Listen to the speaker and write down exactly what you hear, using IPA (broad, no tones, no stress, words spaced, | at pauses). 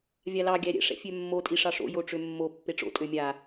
vʲalɑ ɡʲæɾʲɛ̰ ʂɛ̰fʲømːo tʼiʂɑʂo̰ joʈ͡ʂømːo pːeʈ͡ʂo̰ tʼømʲa